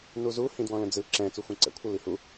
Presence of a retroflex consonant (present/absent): absent